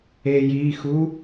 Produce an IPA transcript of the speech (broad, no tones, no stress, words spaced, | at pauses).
ejiːxu